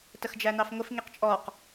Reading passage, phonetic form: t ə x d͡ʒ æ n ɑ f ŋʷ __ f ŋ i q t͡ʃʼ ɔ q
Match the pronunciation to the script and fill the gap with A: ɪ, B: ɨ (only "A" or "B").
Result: A